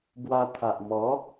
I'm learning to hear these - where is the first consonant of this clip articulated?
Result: lips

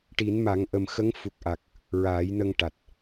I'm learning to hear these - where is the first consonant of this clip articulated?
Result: retroflex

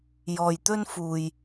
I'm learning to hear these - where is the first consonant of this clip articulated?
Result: palate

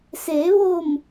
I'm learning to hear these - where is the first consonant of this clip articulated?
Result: tongue tip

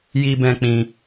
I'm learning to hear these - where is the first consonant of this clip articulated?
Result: palate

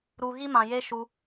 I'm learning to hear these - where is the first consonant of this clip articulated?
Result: tongue tip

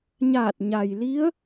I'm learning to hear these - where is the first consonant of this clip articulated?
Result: palate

